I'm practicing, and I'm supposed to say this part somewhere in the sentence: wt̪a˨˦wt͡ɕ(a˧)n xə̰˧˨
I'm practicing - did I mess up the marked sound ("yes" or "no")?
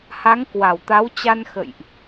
no